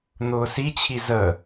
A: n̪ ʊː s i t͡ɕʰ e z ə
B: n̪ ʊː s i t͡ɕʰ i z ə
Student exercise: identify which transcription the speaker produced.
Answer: B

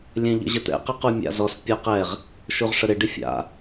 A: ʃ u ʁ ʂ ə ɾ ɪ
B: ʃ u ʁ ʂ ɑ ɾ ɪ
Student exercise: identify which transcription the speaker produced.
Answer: A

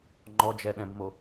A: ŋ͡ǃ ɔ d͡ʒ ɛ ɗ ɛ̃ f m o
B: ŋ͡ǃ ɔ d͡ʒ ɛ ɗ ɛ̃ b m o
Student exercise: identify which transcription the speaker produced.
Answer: B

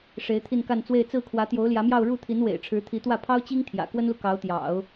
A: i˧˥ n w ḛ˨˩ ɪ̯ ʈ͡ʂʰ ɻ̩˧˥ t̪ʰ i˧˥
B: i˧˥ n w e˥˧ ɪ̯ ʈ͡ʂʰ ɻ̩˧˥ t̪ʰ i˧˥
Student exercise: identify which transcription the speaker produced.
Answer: A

